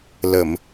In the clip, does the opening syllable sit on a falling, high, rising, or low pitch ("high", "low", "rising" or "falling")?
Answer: low